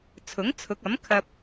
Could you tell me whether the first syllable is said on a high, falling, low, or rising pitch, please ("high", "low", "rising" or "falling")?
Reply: rising